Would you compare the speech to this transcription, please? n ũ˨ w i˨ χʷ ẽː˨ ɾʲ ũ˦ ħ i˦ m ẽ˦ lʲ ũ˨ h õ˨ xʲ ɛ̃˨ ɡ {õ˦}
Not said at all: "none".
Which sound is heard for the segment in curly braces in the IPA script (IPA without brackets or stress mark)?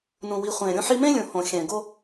o˦